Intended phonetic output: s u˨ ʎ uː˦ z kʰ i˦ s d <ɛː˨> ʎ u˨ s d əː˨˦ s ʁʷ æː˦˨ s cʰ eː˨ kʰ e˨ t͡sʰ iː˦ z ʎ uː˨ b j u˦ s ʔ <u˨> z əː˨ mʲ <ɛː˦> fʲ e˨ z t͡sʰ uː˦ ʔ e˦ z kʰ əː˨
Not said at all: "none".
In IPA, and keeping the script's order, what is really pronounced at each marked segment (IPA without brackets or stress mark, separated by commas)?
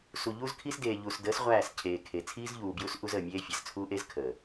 eː˨, u˦, eː˦